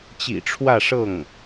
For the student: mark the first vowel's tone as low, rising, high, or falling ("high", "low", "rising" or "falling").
low